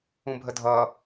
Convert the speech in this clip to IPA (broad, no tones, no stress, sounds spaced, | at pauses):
ũ bʱ ə dʱ ʌː